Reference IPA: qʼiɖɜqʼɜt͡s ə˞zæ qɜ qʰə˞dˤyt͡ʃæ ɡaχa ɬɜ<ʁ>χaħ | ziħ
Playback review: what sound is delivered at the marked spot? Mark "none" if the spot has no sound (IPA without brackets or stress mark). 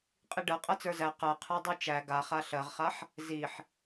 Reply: ʁ